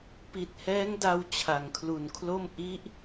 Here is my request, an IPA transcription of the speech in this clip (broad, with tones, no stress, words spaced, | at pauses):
pi˨˩t̚hɛː˦˥ŋ da˧w t͡ɕʰa˩˦ŋkʰlu˨˩nkʰlo˥˩m ʔi˦˥ʔ